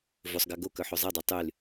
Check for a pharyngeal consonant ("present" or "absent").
present